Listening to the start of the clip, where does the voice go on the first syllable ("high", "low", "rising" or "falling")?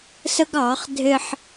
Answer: high